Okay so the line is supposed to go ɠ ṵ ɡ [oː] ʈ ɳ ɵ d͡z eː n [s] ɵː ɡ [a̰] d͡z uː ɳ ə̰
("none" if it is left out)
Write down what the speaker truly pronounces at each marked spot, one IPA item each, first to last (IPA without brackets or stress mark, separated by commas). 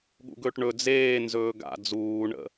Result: ɵː, z, a̰